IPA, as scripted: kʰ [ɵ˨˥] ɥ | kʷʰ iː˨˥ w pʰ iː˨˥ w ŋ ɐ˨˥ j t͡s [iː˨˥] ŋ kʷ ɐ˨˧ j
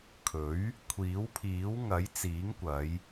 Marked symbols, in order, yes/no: yes, yes

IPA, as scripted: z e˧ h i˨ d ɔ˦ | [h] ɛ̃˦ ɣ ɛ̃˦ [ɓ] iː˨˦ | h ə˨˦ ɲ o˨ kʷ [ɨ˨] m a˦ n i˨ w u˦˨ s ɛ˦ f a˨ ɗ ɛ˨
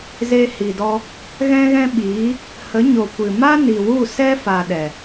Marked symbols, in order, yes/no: no, yes, yes

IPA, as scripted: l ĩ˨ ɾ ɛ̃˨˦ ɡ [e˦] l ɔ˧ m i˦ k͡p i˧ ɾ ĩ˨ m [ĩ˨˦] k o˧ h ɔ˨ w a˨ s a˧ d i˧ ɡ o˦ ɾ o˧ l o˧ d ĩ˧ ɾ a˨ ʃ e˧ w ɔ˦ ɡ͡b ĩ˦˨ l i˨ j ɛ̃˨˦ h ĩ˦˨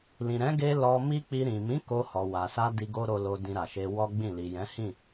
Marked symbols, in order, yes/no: no, yes

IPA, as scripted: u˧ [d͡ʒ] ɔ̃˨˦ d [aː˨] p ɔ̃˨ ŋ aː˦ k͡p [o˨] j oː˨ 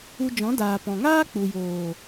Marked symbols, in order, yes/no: yes, yes, no

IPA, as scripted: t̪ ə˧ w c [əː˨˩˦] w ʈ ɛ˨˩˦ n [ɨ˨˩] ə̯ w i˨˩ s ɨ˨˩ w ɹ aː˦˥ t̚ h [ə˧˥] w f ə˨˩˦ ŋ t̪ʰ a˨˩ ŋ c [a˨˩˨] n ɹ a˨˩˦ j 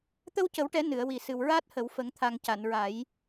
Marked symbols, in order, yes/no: no, no, no, yes

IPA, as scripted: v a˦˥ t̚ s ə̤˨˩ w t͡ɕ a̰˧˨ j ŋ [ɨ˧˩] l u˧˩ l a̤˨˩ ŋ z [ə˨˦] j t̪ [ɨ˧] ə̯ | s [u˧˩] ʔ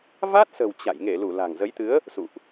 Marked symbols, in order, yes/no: no, yes, no, no

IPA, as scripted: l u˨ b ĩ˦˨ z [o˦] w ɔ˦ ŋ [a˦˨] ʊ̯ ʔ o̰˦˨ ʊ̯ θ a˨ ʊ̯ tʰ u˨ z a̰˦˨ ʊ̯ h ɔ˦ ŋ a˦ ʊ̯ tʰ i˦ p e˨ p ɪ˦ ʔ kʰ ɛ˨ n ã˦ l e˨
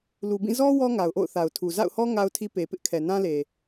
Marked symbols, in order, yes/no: no, no

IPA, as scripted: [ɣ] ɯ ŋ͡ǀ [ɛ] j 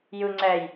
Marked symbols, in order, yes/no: no, yes

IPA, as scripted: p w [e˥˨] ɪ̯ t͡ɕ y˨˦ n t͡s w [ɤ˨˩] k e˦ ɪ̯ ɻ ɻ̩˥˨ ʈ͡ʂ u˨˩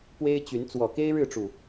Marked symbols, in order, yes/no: no, no

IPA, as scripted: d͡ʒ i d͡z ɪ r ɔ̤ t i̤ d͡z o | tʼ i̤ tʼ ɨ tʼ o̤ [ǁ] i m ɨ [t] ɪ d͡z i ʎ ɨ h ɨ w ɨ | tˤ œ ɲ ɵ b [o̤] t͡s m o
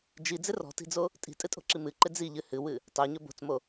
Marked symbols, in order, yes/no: yes, no, yes

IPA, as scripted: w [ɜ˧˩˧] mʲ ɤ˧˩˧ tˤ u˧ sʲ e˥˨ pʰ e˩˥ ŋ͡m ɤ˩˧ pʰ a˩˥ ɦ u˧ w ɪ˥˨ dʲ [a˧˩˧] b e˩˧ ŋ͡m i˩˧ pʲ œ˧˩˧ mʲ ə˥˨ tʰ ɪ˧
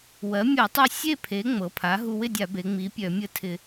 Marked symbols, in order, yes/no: no, yes

